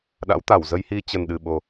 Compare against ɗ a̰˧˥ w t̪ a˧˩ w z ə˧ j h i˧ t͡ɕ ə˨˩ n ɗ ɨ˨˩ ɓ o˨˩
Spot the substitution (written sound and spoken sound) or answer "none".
none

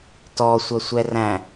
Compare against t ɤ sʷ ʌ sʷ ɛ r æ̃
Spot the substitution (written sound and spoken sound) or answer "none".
ɤ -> ɔ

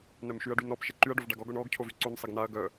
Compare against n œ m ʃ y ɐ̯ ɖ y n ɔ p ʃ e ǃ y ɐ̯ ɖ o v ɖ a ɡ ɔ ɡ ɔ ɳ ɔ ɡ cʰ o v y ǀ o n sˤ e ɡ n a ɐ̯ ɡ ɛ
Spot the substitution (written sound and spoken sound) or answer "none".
ɛ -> œ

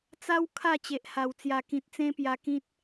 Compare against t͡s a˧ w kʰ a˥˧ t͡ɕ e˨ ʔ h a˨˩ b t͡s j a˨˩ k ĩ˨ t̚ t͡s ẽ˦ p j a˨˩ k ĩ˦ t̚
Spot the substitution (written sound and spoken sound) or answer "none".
b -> w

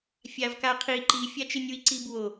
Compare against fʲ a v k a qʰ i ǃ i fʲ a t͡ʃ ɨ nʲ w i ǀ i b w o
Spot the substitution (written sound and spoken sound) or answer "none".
none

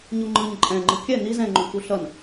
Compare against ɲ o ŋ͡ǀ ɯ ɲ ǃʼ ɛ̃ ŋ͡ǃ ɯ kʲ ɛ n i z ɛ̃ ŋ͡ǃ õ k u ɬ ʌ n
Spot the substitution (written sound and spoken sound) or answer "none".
ŋ͡ǀ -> ŋ͡ǃ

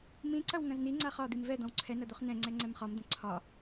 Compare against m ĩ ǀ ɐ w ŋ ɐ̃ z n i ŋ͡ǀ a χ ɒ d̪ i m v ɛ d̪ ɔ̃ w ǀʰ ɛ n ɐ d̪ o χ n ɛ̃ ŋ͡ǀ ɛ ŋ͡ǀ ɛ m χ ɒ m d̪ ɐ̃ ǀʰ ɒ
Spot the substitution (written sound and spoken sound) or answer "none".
none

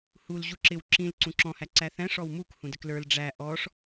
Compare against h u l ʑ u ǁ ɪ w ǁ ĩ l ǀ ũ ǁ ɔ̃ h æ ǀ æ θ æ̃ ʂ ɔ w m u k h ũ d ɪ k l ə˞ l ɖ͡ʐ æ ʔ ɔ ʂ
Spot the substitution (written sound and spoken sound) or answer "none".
none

